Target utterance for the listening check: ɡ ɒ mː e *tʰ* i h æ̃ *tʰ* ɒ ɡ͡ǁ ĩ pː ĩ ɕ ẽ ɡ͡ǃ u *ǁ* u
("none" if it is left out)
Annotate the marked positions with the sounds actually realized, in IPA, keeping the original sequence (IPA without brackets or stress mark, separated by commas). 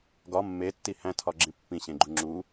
tː, tʰ, ŋ͡ǁ